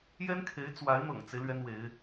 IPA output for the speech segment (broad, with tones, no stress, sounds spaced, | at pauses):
j ɛ˥ n kʰ e˧˥ ɪ̯ t͡s w a˧˥ ɪ̯ n̪ ɤ̰˨˩ ŋ t͡s e˦ ɪ̯ l ɥ ɛ˥ n w e˧˥ ɪ̯